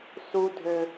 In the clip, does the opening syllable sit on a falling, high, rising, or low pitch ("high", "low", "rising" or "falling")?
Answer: high